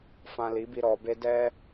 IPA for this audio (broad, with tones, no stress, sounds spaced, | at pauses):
f ã˧ l i˨˦ b i˧ ɾ ɔ˨ b e˧ d ɛ˦